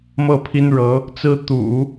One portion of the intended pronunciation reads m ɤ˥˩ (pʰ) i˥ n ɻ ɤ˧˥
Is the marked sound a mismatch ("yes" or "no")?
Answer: no